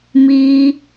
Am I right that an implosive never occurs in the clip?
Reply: yes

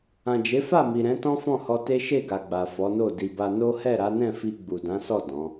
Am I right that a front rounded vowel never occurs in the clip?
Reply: yes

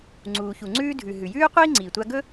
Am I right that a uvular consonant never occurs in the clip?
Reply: no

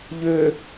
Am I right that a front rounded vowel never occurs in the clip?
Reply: no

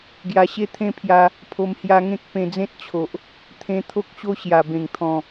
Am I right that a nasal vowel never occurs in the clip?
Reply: no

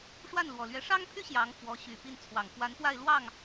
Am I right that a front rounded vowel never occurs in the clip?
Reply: no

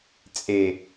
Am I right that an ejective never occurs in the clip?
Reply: no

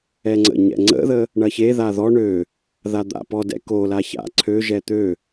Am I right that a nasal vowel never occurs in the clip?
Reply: yes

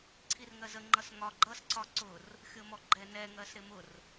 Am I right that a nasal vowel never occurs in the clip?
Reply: yes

